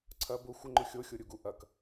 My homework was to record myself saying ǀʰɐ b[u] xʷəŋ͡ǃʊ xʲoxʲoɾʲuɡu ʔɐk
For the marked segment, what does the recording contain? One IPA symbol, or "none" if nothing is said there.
ʊ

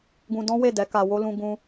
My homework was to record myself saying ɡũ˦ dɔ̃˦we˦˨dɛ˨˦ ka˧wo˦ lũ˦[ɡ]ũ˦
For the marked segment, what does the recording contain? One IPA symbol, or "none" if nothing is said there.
ɡ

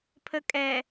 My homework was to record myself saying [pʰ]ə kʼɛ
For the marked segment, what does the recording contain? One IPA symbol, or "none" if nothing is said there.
pʰ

